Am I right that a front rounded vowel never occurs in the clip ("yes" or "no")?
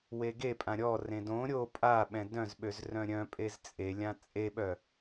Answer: no